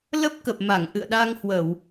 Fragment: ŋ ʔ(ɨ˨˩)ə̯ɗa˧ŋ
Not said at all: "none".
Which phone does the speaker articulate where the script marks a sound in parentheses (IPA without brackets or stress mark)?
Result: ɨ̰˧˨